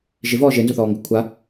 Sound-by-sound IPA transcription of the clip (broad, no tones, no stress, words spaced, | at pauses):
ʒɪvɔː ʒenzʊθɔːŋɡʊ kʷʰa